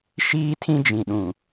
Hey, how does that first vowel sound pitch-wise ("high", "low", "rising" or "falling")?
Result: high